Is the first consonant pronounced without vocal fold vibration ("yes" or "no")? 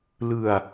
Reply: no